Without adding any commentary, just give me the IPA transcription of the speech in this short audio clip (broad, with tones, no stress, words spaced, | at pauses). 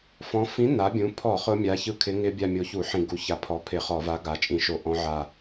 fɔ̃˨˥ fĩ˨˥na˩˧bʲũ˩˧pʰɔ˧˩˧ χʊ˦˥mʲa˨˥çɯ˦˥ kʰɪ˨˥ŋɪ˦˥bʲa˦˨ mʲo˨˥çu˧˩˧ ħĩ˧˩˧ɡu˨˥ ça˧˩˧ pʰɔ˨˥pʰɪ˧˩˧ χɔ˧˩˧va˨˥ ɡa˩˧t͡ʃʼĩ˧˩˧ʃo˧˩˧ ʔɔ̃˦˥ʕa˦˨